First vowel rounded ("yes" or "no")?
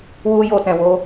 yes